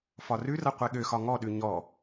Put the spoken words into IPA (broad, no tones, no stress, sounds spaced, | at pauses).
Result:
f ɒ r ʉ r ʌ qʷ e ɠ ø x ɒ ŋ ɔ ɗ ʉ ɲ ɔ